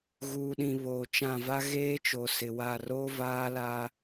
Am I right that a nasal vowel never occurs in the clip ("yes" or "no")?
no